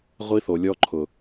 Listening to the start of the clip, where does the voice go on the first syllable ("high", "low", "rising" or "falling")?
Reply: high